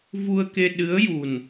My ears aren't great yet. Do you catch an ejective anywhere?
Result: no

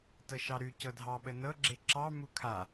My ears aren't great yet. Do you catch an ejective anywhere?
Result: no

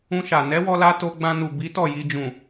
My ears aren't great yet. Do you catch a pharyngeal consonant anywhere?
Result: no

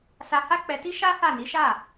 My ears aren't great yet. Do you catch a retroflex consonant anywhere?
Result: no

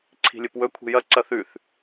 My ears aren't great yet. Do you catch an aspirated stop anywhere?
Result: yes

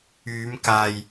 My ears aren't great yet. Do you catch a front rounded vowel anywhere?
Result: yes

